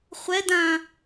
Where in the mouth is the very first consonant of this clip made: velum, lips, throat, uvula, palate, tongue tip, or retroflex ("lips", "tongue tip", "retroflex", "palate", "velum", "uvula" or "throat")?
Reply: uvula